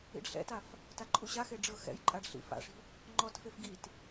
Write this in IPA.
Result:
ḭ ɖ ɬ ɛ̰ t a f | t a ǃʼ u ɕ a x e ɖ͡ʐ ɤ x ɛ̰ j ǃʼ a ɖ ɬ ḭ f a̰ ʂ i̤ | ŋ͡ǃ ɔ t f e f ɡ i t

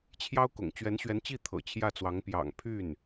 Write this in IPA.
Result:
t͡ɕʰ j ɑ˥ ʊ̯ k ʊ̰˨˩ ŋ t͡ɕ ɥ ɛ˧˥ n ɕ ɥ ɛ˧˥ n t͡ɕ i˥˩ t̪ʰ ɤ̰˨˩ t͡ɕʰ j ä˥˩ t͡s w ɑ˧˥ ŋ p j ɑ̰˨˩ ŋ pʰ y˥˩ n

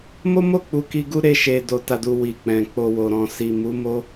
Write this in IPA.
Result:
m o˦ m o˦˨ k͡p u˨˦ k i˧ ɡ u˦ ɾ e˧ ʃ e˨ d o˨ t a˨ d u˨ w i˨ k͡p ɛ̃˨ k͡p o˨ w o˨ ɾ ɔ̃˨ s i˨ m u˨˦ m o˦

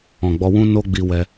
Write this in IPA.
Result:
ɔ̃˨ ɡ͡b ɔ˧ w ũ˦ n o˦ ɡ͡b i˧ w ɛ˧

